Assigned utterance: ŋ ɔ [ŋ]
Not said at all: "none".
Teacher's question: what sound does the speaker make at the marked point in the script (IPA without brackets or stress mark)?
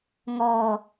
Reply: none